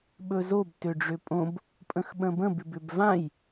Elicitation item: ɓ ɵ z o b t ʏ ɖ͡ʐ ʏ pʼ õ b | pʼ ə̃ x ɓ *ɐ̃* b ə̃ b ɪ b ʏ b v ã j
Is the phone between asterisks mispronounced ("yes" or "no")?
yes